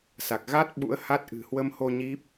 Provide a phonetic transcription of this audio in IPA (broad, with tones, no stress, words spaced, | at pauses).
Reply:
sa˨˩k̚ ɣa˦˥t̚ ɓṵ˧˥ə̯ha˦˥t̚ ʔɨ̤˨˩ hwə˧mho˧ ɲi˦˥p̚